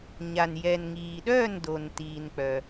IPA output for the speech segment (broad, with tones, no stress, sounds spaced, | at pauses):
ɲ a˨ n j ɛ˨ n ŋ iː˨ ɗ œː˥˧ n d o˨ n t iː˨ n k͡p œ˨